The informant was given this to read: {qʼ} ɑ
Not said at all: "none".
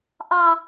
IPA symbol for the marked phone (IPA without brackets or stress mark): ʔ